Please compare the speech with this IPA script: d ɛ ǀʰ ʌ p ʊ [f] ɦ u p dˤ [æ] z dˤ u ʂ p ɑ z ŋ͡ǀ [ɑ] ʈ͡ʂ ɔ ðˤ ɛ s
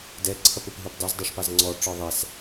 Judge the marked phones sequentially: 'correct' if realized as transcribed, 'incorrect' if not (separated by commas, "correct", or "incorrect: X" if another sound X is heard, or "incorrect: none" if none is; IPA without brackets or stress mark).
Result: incorrect: p, incorrect: ɛ, incorrect: ɔ